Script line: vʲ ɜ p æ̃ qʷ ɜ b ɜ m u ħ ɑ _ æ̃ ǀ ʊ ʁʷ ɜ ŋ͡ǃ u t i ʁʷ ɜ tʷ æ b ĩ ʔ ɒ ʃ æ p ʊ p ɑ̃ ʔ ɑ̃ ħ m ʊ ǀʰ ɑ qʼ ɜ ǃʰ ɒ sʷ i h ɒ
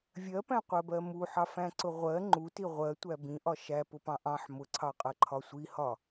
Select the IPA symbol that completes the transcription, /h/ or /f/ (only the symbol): f